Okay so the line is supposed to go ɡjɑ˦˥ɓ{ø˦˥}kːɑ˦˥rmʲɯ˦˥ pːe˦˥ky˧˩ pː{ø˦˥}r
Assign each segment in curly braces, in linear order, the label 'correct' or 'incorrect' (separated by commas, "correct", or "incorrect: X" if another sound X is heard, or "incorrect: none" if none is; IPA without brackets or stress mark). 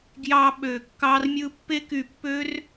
incorrect: ø˧˩, correct